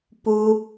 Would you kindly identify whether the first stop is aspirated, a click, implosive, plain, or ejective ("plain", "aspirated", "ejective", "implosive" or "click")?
plain